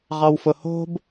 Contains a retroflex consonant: no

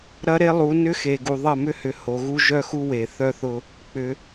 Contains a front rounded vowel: yes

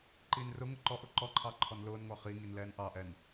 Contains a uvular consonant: yes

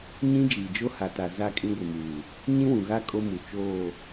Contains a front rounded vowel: no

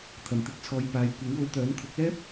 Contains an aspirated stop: yes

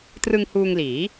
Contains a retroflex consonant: no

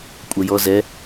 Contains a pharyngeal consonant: no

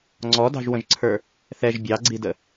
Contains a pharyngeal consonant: no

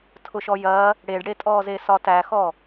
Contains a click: no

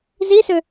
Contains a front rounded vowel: yes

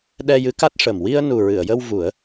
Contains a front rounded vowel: no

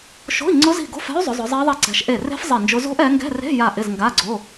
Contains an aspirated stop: no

